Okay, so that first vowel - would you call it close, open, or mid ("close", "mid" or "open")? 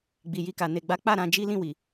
close